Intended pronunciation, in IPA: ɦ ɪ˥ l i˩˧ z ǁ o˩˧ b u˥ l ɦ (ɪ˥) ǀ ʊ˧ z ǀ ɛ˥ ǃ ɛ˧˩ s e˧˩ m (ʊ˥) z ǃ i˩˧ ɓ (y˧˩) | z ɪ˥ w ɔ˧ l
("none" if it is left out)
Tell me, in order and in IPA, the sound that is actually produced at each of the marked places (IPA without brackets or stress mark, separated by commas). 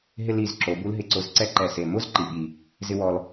ɪ˧, ʊ˥, i˧˩